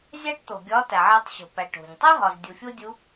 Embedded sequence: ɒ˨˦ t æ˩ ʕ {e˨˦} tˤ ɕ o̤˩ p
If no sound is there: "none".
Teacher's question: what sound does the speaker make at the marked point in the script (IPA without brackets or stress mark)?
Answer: e˨˦